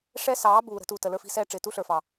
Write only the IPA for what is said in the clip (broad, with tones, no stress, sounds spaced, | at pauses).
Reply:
ʂ ɛ˦ s ɑː˨˦ b uː˨ ɾ ə̤˧ t uː˨ t ə˨ l ə˞˦ f i̤˦ s ɛː˦ ʈ͡ʂ ɪː˨ t u˦ ɬ ə˞˨ f ɑ˨